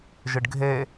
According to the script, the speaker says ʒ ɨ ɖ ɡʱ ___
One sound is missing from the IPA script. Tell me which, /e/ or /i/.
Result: e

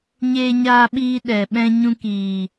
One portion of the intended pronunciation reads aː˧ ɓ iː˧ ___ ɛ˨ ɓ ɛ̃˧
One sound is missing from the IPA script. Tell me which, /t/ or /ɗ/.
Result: ɗ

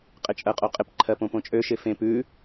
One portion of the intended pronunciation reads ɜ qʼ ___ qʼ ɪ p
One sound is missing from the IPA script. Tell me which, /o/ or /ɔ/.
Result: o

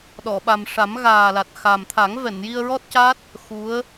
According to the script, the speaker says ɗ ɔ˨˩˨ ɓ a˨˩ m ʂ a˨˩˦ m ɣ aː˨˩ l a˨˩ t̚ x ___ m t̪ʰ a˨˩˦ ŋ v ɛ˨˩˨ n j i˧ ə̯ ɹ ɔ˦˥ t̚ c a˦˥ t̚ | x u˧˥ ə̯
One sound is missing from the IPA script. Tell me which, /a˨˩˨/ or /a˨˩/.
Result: a˨˩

